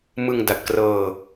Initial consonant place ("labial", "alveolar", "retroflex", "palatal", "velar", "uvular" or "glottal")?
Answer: labial